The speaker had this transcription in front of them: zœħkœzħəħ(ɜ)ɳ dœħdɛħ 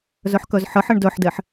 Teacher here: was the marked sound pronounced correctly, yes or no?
yes